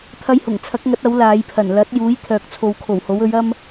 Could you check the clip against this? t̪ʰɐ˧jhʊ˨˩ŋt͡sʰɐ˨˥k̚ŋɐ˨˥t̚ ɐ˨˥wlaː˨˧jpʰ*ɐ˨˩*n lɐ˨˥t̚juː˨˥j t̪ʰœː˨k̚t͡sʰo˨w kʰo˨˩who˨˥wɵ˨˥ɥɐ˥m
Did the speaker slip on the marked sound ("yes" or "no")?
no